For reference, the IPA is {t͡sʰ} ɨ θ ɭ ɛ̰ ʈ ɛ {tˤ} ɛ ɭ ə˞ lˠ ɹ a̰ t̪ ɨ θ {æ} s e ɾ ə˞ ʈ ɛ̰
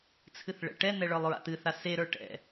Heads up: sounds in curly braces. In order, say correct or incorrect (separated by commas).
correct, incorrect, incorrect